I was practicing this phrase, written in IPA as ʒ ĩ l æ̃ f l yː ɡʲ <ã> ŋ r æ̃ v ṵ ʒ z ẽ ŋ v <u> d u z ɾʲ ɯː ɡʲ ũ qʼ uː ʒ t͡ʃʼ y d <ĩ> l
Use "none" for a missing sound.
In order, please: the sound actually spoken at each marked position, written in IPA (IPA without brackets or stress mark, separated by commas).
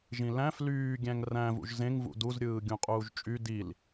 æ̃, ṵ, i